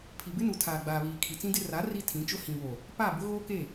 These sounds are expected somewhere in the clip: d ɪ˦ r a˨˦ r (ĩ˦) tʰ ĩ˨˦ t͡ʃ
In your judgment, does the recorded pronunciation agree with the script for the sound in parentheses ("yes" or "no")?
no